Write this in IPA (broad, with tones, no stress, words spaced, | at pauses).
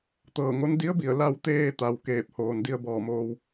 t̪ɤː˧˩ŋo˧˥n di˧˥ə̯bi˧˩ə̯ la˧wt̪eː˧t̪a˩w keː˧˩p̚hoː˩ndi˧ə̯ bɔː˧˩moː˧w